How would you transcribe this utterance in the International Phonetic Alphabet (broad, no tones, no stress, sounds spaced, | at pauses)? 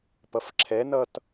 p ʌ f ǁʰ ɛ n ʌ t